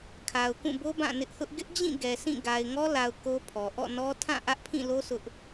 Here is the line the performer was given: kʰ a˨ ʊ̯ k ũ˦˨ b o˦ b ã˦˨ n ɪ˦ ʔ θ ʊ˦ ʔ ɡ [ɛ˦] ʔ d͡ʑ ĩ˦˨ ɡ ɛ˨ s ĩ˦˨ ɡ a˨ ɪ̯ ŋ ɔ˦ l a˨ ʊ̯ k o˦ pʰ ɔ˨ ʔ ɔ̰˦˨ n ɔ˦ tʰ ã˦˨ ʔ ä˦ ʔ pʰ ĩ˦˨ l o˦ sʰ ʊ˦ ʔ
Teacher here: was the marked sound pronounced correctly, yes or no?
no